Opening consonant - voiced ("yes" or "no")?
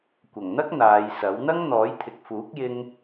no